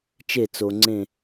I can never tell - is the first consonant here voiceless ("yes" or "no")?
yes